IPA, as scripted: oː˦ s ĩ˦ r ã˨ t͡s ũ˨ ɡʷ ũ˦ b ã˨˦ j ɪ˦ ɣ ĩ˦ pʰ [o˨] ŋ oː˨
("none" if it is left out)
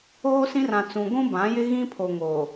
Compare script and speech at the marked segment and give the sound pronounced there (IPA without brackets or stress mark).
o˨